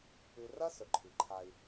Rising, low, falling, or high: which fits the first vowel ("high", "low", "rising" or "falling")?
low